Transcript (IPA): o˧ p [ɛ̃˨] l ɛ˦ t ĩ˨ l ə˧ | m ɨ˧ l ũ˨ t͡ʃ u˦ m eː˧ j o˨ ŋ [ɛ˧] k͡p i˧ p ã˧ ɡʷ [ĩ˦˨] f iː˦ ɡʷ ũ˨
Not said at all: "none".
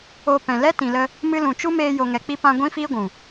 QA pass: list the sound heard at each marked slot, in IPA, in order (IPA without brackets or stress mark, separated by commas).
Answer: ɛ̃˨, ɛ˨, ĩ˦